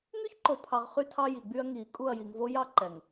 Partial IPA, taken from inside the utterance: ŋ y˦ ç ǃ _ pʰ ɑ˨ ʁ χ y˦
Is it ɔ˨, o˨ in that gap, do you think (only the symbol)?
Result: o˨